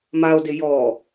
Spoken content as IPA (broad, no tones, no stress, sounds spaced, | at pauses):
m a o̯ d ɪ j ɔ